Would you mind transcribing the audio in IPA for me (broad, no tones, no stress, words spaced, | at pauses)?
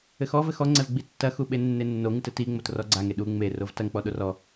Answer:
ɘxɔ vɘxɔŋ͡ǀɛv ɡ͡bitːɐ xuɓenːenːo ŋɨtɘtiŋ͡mot rɔɡ͡ǀaŋe ɗu ŋ͡me rovtɐŋk͡pɔ ɗorɔ